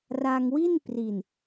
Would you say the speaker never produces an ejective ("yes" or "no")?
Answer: yes